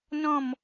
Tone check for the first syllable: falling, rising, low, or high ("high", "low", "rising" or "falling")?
falling